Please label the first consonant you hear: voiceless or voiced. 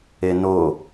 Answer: voiced